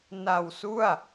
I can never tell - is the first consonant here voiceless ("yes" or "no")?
no